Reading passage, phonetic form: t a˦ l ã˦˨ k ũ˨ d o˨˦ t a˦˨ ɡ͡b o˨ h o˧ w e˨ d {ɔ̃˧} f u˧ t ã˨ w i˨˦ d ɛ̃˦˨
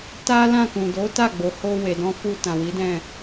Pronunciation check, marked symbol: correct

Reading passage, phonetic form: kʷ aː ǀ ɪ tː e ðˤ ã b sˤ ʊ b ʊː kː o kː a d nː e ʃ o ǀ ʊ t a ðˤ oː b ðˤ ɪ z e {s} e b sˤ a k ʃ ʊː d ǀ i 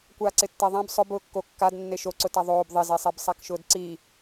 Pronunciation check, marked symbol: incorrect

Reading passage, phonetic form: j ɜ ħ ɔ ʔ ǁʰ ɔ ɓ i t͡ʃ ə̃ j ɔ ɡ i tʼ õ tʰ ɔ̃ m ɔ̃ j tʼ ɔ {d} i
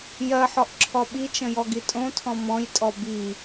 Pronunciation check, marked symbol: incorrect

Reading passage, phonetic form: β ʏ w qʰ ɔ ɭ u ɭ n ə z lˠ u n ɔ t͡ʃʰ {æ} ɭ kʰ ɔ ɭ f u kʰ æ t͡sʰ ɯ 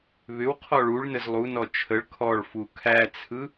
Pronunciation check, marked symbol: incorrect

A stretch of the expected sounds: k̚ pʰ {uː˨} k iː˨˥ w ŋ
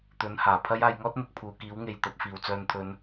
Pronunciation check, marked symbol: correct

